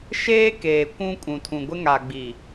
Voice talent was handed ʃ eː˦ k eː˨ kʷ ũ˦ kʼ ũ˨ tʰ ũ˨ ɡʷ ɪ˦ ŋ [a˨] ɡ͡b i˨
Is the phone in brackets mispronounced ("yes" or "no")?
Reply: no